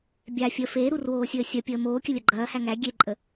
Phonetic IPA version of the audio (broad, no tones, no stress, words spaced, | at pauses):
bʲa fʲə feːɾurwoːsʲəː sʲɐpʲəː moːkʲəlʲɐ ɡ͡ǃɐːhæ ŋæ ɡʲeǃʼə